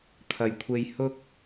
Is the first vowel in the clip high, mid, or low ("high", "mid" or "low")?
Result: low